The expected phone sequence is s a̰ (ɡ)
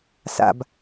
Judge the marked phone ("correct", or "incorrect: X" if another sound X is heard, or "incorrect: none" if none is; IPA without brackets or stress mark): incorrect: b